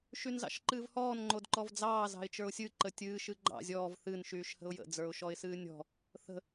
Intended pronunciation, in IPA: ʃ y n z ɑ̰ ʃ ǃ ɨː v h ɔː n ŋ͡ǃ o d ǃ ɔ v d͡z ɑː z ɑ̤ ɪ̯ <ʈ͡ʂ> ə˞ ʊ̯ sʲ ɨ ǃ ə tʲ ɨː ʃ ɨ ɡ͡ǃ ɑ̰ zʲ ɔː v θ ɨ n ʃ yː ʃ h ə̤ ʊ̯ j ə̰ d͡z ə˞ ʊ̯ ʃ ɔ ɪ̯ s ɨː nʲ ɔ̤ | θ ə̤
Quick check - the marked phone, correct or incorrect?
incorrect